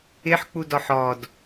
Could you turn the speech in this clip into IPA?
ɪħk͡pudɔħ ɔd

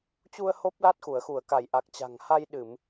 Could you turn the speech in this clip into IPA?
t͡ɕu˧ə̯ ho˦˥p̚la˦˥t̚ xu˧˩ə̯xu˧˩ə̯ka˧˩jʔa˨˩k̚ t͡ɕa̤˨˩ŋha˧jɗɨ˧˩˨m

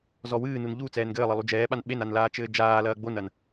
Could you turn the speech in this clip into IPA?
zɔwɨːnun ʎu t͡sɛːnɡɘːlˠɘ lˠud͡ʒɛːɓan ɓenan laːt͡ʃɘːd͡ʒaːlɐː ɡ͡bonɐn

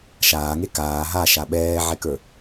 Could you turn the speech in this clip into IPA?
ʃaːŋe kaː ɦaʃa ɓɛːʕɛkə˞

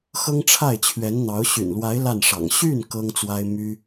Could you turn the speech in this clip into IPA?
xɤ˥ŋʈ͡ʂʰa˥˩ɪ̯t͡ɕʰɥɛ˧˥nn̪ɑ˧˥ʊ̯ ɕy̰˨˩nlwa˧˥ɪ̯ la˥˩nʂɑ̰˨˩ŋ ɕy˥˩n kɤ˥ŋt͡swa˥ɪ̯ my˥

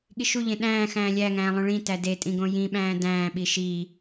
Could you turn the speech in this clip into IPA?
ɠiʃuʎẽ ɗæ̃ː xæ̃ːlʲæŋæ̃ː lˠõɭĩtæ detʼĩ ɡõjĩɓæ̃ː dæ̃ːɓi ʃi

